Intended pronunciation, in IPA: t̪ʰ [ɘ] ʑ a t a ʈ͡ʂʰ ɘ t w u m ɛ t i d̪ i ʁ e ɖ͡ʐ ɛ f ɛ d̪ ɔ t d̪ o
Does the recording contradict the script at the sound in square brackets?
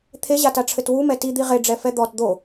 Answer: yes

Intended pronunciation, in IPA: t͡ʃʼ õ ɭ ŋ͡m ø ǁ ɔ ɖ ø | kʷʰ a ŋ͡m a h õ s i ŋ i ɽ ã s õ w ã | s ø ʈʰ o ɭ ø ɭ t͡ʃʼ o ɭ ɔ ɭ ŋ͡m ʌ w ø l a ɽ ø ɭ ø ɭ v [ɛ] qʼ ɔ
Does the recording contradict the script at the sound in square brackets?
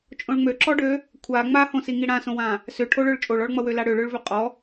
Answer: yes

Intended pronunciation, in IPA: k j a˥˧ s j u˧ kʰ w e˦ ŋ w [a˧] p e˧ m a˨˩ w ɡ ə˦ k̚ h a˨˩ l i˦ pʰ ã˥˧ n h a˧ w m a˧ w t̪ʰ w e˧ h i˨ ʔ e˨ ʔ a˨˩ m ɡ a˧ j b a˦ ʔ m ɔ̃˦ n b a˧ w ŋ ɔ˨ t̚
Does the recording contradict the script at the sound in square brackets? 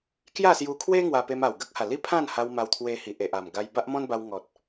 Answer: no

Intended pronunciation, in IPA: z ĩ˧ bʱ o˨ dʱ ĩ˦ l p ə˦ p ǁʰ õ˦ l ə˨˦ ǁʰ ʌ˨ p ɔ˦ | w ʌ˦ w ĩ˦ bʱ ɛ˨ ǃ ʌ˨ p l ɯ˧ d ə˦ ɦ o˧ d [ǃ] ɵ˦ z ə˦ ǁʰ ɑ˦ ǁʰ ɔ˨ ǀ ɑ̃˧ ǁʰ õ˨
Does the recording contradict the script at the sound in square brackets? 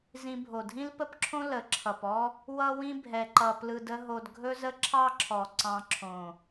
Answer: yes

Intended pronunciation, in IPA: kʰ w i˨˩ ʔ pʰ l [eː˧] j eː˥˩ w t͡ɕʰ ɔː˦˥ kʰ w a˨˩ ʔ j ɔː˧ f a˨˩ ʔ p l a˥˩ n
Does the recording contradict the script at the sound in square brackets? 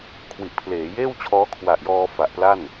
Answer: yes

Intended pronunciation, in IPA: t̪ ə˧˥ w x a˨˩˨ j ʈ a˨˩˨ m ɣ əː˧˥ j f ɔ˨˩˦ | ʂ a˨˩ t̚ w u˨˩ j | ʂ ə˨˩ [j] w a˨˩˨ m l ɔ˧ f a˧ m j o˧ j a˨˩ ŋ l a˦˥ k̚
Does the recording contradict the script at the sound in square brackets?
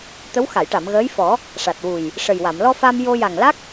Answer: no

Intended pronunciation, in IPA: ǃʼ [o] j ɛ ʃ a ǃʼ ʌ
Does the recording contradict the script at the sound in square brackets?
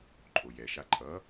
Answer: no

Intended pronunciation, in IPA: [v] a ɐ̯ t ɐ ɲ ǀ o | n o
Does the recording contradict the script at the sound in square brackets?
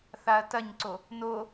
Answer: yes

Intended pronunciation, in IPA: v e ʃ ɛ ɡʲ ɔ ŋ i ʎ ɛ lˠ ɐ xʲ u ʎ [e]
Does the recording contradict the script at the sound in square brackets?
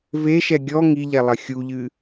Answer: yes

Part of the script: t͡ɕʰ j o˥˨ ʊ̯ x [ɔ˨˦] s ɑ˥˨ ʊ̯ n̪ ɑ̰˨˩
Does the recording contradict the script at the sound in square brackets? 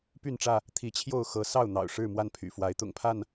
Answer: yes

